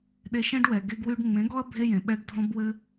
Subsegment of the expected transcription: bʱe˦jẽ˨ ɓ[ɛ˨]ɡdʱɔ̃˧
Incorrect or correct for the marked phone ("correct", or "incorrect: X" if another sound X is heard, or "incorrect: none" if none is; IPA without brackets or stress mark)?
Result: incorrect: ɛ˧